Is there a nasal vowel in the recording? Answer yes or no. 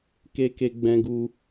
yes